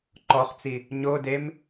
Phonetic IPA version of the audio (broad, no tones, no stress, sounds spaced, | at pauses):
ǃ ɔ χ t͡s i | ɲ o d e m